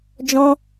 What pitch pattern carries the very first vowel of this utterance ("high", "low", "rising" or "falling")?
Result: high